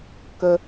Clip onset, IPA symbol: k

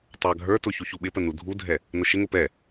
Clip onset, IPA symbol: tˤ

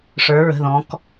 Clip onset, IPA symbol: ʂ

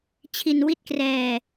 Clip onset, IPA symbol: t͡ɕʰ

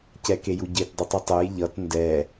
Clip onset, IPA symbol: c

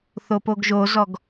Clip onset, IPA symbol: θ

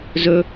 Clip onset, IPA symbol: z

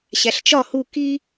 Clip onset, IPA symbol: ɕ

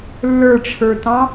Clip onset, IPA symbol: lː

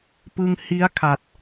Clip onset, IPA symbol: p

